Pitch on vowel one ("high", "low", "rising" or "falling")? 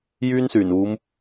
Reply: high